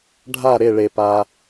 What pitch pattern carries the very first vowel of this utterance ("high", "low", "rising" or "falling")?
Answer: falling